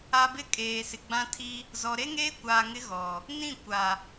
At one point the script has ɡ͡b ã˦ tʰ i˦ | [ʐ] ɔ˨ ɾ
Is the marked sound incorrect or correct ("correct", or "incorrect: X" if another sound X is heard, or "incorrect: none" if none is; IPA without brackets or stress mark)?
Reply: incorrect: z